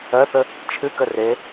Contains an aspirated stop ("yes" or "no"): yes